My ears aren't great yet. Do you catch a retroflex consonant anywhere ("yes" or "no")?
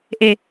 no